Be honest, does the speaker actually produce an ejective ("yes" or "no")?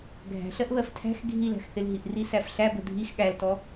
no